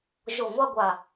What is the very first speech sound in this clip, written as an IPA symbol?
ʒ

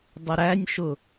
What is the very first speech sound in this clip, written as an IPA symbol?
dˤ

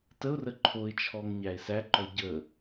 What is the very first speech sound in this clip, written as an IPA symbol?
t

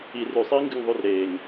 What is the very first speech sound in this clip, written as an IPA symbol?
i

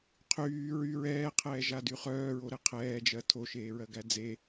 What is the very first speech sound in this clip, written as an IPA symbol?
qʰ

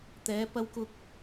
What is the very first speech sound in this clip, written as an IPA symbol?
t̪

